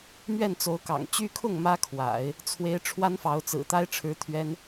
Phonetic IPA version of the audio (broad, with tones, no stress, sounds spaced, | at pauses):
m ɥ ɛ˥˩ n t͡s o˧˥ ʊ̯ k ɑ̰˨˩ ŋ t͡ɕ y˥ kʰ ʊ˥˩ ŋ m ä˥ kʰ w a̰˨˩˦ ɪ̯ | t͡sʰ w e˧˥ ɪ̯ ʈ͡ʂʰ w a˥ n f ɑ˧˥ ʊ̯ t͡s ɹ̩˨˩ t̪ a˥ ɪ̯ ʈ͡ʂʰ ɻ̩˧˥ t̪ʰ ɥ ɛ˥ n